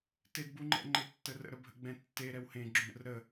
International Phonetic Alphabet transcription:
t ɪ d b u ŋ͡ǃ ɛ̰ ŋ͡ǃ ɪ tː ə r ə̰ ɾ ə bʱ ə̰ ɡ͡b ɛ̃ tː e ɾ ɛ w h ẽ ɡ͡ǁ ũ ɾ ə̰ r ɾ ə

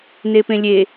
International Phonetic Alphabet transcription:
n e p ẽ lʲ e

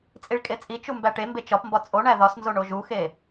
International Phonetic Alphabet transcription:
t͡sʼ i ɭ kʼ e t͡sʼ i t͡ʃ u m b æ ʈ e m b e t͡ʃ ɒ p m b ɒ t͡sʼ o ɳ æ ð ɒ s n z o ɳ o ʒ u x e

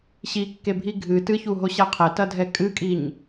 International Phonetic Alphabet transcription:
ɕ i kː e bʱ i ɡʱ ɨ t ɨ ç u ɦ o ɕ a qʰ ɛ t ɐ dʱ ɛ kʼ ɨ kʼ i ɲ

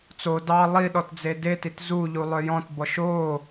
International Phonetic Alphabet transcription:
t͡s o d ɑ lˠ i ɗ ɔ t d͡z e d e t i t z u ʎ u lˠ œ j ɔ̃ t b ɔ ʃ o

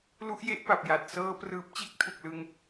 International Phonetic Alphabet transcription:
l u˦˥ ʔ j e˦˥ ʔ p a˨˩ p̚ j a˨˩ t̚ s ɤː˧ p r ɯː˨˩ p̚ t͡ɕ e˦˥ k̚ tʰ u˨˩ k̚ l ɯ˧ ŋ

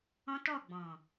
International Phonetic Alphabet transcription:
ɔ̃˦ t ɔ˦˨ ɡ͡b ɔ̃˨

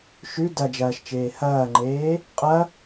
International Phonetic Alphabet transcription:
ʃ ʉ d ɐ d͡ʒ ɐː ʃ t͡ʃ eː h ɐː ŋ͡ǃ eː | qʼ ɐ

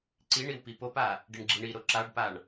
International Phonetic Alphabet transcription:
ǀ i ɳ i w p i p o p a | ɖ i ɳ ɡ͡ǁ i ɳ i ɾ o ǁ a ɖ p a ɳ

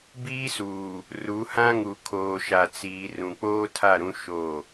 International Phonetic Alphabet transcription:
b iː˦ s uː˨ | r u˨˦ h ã˦ ŋ u˨ kʰ oː˨ ʃ a˨ t͡s iː˨ r ũ˨ k͡p oː˦ tʰ a˦˨ ɾ ũ˦ ʃ o˦˨

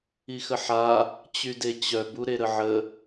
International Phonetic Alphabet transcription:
i x ə ħ a | t͡ɕ y d e t͡ɕ œ b u ɾ e ɾ ə ʕ ə

